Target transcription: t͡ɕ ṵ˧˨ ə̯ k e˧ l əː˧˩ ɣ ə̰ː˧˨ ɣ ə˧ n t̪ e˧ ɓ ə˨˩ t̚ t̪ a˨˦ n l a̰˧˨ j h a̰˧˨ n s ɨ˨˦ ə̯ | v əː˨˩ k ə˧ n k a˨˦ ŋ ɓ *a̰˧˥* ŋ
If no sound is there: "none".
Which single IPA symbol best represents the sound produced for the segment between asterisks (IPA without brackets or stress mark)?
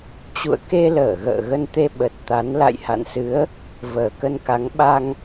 a˧